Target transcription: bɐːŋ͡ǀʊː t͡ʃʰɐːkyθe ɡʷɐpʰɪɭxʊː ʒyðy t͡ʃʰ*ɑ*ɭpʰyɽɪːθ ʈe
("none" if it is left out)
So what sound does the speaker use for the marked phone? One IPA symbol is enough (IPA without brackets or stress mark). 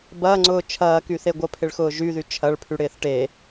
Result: ɐ